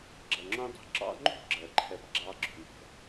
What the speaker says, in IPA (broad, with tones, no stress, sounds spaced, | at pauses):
ɡ͡ǁ ʌ˨ ŋ͡ǁ ũ˦ dˤ ṳ˦ ǁ ɑ̰˦ ŋ͡ǃ ṳ˦˨ ɡ͡ǁ ɜ˨ ǃʰ ɛ˨ p ɡ͡ǁ ɑː˦ ɡ͡ǁ ṳ˨ n ɛ̤˨